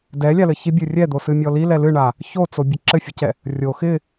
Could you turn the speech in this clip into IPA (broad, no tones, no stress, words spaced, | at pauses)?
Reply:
dɛlʲalɘ çibʲɨ rʲɛd̪osɨmʲɔ lilɛ lɨɳa | çot͡sobʲɘ ǁɘfʲɘcɛ | rʲo xɪ